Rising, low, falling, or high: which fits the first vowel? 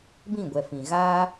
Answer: falling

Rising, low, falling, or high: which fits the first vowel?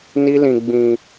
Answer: high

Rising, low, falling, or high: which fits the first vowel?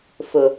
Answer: low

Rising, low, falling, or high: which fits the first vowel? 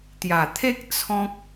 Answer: low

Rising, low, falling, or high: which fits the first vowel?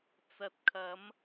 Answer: low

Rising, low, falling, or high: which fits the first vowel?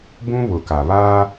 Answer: high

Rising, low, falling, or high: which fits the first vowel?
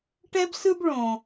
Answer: high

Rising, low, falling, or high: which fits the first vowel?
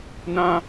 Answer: high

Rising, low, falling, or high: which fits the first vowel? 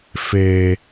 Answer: high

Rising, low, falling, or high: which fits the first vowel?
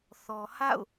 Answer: low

